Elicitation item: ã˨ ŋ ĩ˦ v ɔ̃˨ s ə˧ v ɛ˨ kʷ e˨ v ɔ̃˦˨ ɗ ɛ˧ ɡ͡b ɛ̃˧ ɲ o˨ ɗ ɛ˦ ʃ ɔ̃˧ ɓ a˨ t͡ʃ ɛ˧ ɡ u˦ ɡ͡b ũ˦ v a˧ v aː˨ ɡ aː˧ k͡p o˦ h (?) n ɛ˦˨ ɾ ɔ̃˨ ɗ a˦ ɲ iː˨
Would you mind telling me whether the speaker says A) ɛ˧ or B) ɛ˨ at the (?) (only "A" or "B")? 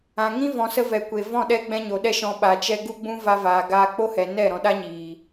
B